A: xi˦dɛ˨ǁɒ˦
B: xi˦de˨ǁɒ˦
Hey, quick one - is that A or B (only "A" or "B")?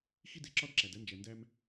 B